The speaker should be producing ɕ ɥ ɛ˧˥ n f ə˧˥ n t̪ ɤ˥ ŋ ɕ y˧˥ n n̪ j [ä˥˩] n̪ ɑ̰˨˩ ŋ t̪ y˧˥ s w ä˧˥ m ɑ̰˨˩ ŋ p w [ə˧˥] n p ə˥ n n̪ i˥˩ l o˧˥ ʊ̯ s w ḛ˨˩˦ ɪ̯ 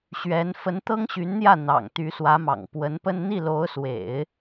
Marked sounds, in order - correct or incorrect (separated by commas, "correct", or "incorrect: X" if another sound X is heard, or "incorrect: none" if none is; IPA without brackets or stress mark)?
correct, correct